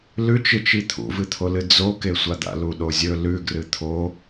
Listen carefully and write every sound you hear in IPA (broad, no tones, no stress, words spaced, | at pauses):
lʉt͡ʃɨt͡ʃi t̪ʰṵvɨt̪ʰolɨ d͡zokesʷad̪a̰ luɗozʲɵ lʉɡrɨ t̪ʰo